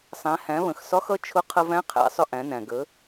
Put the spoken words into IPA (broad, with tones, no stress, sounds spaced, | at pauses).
sˤ æ̃˩˧ h æ̃˩˧ β ə̃˩ x s ɒ˧˥ x ʌ˧˥ t͡ʃʰ ʊ˧˥ qʰ ə˧ v æ̃˧˥ qʰ æ̰˩˧ sˤ ʊ˧ ʔ æ̃˩˧ n æ̃˩ ɡ ə˩˧